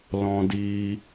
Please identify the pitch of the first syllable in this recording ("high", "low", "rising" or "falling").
high